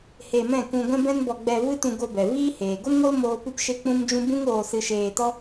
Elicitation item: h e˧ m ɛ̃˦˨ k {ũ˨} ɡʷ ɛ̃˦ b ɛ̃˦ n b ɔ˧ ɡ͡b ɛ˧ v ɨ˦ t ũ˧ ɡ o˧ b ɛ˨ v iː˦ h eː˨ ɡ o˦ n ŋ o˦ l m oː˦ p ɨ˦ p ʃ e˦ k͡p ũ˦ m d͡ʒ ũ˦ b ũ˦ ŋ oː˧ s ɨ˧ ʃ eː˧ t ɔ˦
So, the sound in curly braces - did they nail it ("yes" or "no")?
no